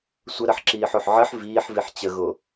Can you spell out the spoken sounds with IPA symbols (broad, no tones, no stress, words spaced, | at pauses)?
sʷəɾɐħǁiːħoħ ʕəħ viːħviħ t͡ɕəɣo